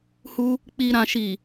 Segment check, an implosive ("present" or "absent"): absent